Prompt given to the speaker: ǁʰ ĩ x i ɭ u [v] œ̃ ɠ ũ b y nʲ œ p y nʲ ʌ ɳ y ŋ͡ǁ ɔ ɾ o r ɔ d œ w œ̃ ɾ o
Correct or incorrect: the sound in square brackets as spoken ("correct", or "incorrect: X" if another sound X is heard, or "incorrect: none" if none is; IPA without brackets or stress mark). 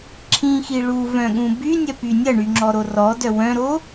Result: correct